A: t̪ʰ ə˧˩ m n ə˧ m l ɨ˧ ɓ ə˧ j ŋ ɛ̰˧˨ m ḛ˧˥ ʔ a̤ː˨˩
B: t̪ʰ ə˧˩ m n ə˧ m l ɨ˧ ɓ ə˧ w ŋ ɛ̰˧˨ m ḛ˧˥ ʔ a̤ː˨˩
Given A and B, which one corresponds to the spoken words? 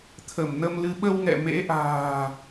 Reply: B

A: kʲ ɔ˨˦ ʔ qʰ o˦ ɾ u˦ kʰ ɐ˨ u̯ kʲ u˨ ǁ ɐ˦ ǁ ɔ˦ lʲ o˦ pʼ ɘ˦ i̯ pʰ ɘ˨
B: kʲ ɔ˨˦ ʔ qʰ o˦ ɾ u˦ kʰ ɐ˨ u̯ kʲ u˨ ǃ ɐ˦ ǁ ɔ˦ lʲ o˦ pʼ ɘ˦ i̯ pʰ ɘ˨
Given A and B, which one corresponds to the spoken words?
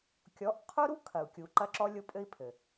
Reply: B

